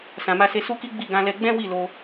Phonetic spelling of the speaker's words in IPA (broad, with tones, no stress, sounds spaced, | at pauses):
s ã˨ m a˧ s e˧ s u˦ k i˦ ɡ͡b i˦˨ ɡ ã˧ l ɛ˧ ɡ͡b ɛ̃˦ w i˦˨ l o˧